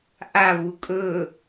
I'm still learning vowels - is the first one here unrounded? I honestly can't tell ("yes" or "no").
yes